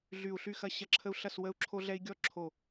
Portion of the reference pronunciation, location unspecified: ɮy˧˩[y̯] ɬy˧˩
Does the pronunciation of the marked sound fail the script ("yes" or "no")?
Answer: yes